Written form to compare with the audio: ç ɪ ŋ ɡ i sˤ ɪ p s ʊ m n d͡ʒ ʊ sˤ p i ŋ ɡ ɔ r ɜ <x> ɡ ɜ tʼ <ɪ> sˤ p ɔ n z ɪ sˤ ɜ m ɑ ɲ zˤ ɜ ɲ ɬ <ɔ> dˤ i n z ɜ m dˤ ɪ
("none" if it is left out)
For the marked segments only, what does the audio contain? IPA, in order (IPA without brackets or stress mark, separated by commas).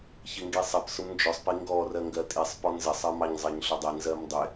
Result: ŋ, i, ʊ